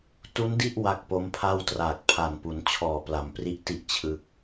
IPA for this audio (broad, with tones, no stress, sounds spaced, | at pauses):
t u˦˥ n d i˥˩ ʔ w a˦˥ k̚ p o˦˥ m pʰ a˥˩ w t r aː˨˩ k̚ pʰ a˨˩ n p u˩˦ n t͡ɕʰ ɔː˨˩ p l a˩˦ m p r i˦˥ ʔ t i˦˥ ʔ t͡ɕʰ ɯ˦˥ k̚